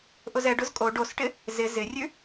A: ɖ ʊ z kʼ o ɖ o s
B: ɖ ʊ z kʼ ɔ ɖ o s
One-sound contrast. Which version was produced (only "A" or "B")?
A